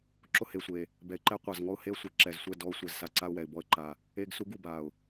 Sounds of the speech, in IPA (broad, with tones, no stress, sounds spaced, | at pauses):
ǁ ʊ˦ h e˨ sʷ e˨ | b ɛ˨ ɪ̯ ǃ ɛ˦ qʷ a˨ z ŋ ɔ˦ ʊ̯ h e˦ ə̯ sʷ e˨ ǁ ɛ˨ z sʷ ɛ˦˨ d ɔ˦ ʊ̯ sʷ ɛ˨ z s a˦ ǀ a˦ ʊ̯ w ɛ˨ ɪ̯ b ɔ˦ ə̯ ǃ a˨ | e˦ ɡ s u˦ ɡ u˨ b a˨ ʊ̯